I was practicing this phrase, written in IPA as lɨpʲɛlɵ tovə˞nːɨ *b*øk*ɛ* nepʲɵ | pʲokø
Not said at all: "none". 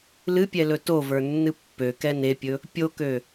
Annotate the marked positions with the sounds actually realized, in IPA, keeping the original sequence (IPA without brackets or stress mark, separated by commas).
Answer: pː, ɛ